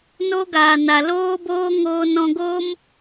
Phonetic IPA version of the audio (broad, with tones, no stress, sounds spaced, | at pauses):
n o˦ ɡ aː˨ n a˨ l oː˦ b oː˦ ŋ oː˧ n ɔ̃˧ ɡ oː˦ m